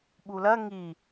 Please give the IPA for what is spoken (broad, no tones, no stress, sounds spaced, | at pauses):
ɓ u l ɐ ŋ i